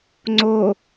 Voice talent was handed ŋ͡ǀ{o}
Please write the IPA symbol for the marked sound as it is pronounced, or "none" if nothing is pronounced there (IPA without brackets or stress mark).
o